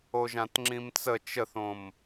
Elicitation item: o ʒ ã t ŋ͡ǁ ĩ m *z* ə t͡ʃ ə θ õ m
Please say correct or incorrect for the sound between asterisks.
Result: incorrect: t͡s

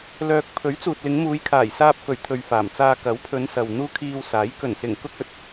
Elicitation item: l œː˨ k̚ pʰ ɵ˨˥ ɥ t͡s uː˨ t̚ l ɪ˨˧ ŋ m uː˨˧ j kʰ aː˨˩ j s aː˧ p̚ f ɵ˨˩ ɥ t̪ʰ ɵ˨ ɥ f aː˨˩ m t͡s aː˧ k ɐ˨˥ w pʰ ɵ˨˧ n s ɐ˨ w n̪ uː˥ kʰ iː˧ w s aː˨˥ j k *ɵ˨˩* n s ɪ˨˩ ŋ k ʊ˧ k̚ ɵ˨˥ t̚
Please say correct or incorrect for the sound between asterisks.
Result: correct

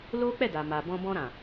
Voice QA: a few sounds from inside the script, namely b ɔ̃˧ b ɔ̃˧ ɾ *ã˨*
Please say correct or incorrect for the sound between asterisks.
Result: correct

